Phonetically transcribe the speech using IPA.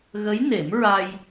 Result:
ɣ ə˧˥ j n e˨˩˦ m ɹ a˧ j

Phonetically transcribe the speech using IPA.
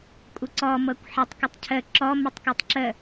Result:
kʷʼ ə ǀ ɔ m ɤ kʷ ħ ə tˤ k ə tˤ cʰ ə ǁ ɔ m ə tˤ k u tˤ ǁ ə

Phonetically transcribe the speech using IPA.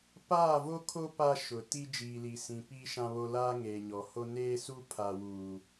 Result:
p aː˦˨ v o˦ kʰ o˦ p a˦ ʃ ʊ˨ t i˦ d͡ʒ iː˨ l i˨ s ĩ˨ p iː˦ ʃ ã˦ β o˦ l aː˦ ŋ eː˨ ɲ ɔ˨ h o˦ n eː˦ s u˦ pʰ a˦ w uː˦

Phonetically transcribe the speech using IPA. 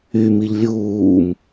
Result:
y m i ʎ lʲ uː m

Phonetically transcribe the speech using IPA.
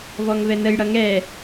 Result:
v ɔ ŋ v ɛ n ə j ɽ ʌ ŋ ɛ

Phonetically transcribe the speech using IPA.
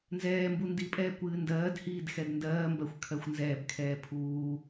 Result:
n z ɛː m b u n d i pʼ ɛː kʷ ɨː n d ɜː d h iː d x ɛ d n d ɜː m b ɜ xʷ kʰ ɜ xʷ n z ɛː b kʰ ɛː pʰ uː

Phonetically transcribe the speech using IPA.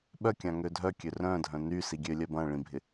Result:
ɓ œ kʲ ã ŋ ø dʱ œ kʲ ø r œ̃ dʱ œ̃ n y s i ɡʲ ø lʲ œ b ɐ̃ ɭ ĩ bʱ ɪ

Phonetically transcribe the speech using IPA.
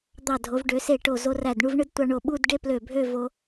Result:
d̪ ɑ˧˩ dʱ o˩˧ v ɖ ø˩˧ s e˧˩ ʈ o˧˩ z o˧ r æ˧˩ d ɳ u˥˧ v ɳ ɯ˥ d tʷ ɑ˧ ɳ o˧˩ ɓ u˥˧ d ɖ e˥ p l ø˧˩ bʱ ø˥˧ v o˧

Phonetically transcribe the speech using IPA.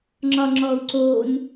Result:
ŋ͡ǁ ɒ ŋ͡ǁ ɔ u̯ ǀ oː n

